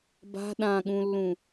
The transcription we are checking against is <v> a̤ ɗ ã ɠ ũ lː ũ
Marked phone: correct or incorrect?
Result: incorrect